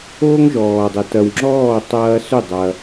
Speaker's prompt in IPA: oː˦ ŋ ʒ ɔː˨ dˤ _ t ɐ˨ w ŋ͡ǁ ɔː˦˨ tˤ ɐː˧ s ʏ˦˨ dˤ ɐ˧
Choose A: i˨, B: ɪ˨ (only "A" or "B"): B